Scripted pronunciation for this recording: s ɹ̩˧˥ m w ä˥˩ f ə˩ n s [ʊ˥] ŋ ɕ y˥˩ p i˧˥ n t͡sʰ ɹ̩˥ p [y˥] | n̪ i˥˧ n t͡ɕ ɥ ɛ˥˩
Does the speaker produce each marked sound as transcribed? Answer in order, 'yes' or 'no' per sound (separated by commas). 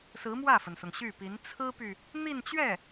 no, no